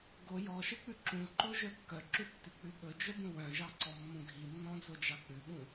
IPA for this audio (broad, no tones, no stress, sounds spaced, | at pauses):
ɡ o j ɔ ʃ e k͡p ʉ ǁ ũ ǃ o ʒ œ kː œ ǁ ʉ tː ʉ k͡p ʉ ɓ ɵ d͡ʒ œ b ũ w œ̃ ʒ ɑ ǀ ɔ mː ũ ɡʱ i nː ɔ̃ d͡z o d͡ʒ ɑ k͡p ʉ ɓ ũ